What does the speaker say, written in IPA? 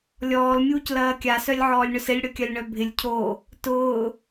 lʲ ɔː l mʲ uː c l ɐː kʲ a s œ lʲ ʕ ɔː lʲ ɳ ʏ s ɪ lʲ ɽ ʏ kʲ ɐ lʲ ɳ œ bʱ ɪ lʲ cʰ o | t ʊː

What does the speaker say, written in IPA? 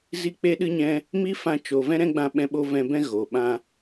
z i˧ k͡p e˧ ɗ ɨ˧ ɲ ɛ̃˧ | m i˦ f ã˧ t͡ʃ o˨ v ɛ̃˦ ɾ ɛ̃˦ ɡ͡b ã˧ ɓ ɛ̃˧ ɓ o˧ v ɛ̃˧ b ɛ̃˦ ɣ o˨ ɓ ã˦

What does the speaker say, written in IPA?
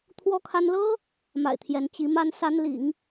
t̪ʰ w ɔ˥ kʰ a˥ n l ɤ˥ | m a̰˨˩ ɪ̯ t̪ʰ j ɛ˧˥ n t͡ɕ i˧˥ m a˥ n s a˥ n l ḭ˨˩˦ ŋ

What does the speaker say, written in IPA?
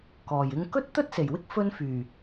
k ɔː˨˩ j ɪ˧ ŋ k ɵ˥ t̚ t̪ ɵ˥ t̚ s e˨˩ j w ɪ˥ k̚ f ɵ˧ n f yː˨˩

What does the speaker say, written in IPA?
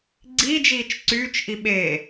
ɡ͡ǀ iː d͡ʒ iː t͡ʃ ǀ yː t͡ʃ ʔ i ɓ e

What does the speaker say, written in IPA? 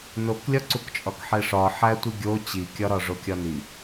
n o k lʲ ɒ ǀ u k t͡ʃʼ ɒ k ħ e ʂ ɒ ħ æ tʷ i ɡʲ o t͡ɕ i kʲ ɒ ɾ ɒ ʐ o kʲ ɒ n i

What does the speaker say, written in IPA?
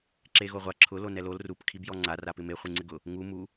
ǁ e ɣ o ʁʷ a ǁʰ ʊ l o n ɛ l o l r u p kʰ i b j ɔ ŋ͡ǀ a r a p ɪ m e χʷ i ŋ͡ǀ ɪ ɡ ʊ | ŋ u m u

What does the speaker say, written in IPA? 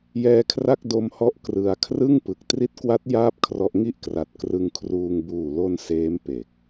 j ɛː˧ kʰ r a˥˩ k̚ d o˧ m h ɔ˦˥ ʔ k r ɯ˧ a̯ kʰ r ɯ˥˩ ŋ p ɯ˨˩ k̚ t r i˦˥ t̚ k w a˦˥ t̚ j aː˥˩ p̚ kʰ r ɔ˦˥ ʔ ŋ i˥˩ ʔ k r a˨˩ t̚ k r ɯ˧ ŋ kʰ r uː˧ ŋ b uː˨˩ l o˧ n s eː˦˥ m p e˨˩ k̚

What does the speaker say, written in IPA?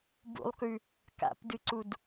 b ṵ lˠ k ʉ | k a̰ p d ɨ ǀ u d

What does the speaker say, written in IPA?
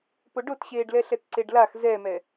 p o ɖ o t ɕ eː ɖ l ɛ ɬ ɛ t ǀ e ɖ l a x z ɛ m ɛ

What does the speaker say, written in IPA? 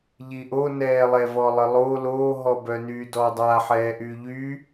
ʎ i ʔ o n ɛː lˠ ɛ v ɔ lˠ ə lˠ o l oː ɦ ɔ b œ n yː d ɔː dˤ a ħ ɛː ʔ yː ʎ y

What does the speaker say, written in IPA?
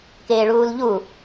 k eː ɭ uː l ʎ u

